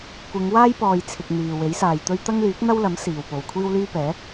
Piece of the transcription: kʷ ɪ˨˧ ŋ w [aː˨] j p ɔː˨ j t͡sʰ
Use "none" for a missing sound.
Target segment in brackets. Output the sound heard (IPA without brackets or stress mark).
aː˥